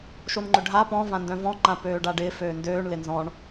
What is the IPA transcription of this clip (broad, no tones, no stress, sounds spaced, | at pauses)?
ʃ o n ŋ͡ǃ ʏ ɖʱ a p ɔ̃ v ã n d œ̃ v ɔ̃ ŋ͡ǃ ã p øː ɖ a ɖ ɪː f øː n d øː ɳ l ɪ n z ɔ̃ ɳ